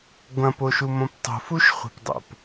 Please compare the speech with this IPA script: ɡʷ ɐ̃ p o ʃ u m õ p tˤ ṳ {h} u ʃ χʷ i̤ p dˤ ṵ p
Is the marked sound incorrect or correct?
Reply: incorrect: f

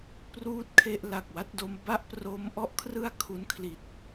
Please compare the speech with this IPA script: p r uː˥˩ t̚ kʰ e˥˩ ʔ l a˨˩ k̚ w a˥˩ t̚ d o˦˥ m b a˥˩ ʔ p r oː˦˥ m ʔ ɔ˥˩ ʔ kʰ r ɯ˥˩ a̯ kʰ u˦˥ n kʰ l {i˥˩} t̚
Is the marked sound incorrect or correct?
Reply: incorrect: i˨˩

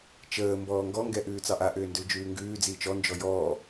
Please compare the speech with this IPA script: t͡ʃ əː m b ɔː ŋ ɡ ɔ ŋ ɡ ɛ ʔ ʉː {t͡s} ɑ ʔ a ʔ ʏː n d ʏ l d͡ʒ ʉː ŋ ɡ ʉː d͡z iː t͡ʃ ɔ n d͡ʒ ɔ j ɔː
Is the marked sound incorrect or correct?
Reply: correct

